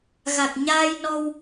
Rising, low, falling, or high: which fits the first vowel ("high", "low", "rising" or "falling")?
low